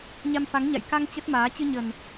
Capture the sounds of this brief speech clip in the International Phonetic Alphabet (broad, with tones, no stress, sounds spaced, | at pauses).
ɲ a˧ m f a˨˦ ŋ ɲ a̰˧˨ j k a˧ ŋ t͡ɕ ə˦˥ t̚ m aː˨˦ t͡ɕ ɨ˧ ɲ ə˨˩ n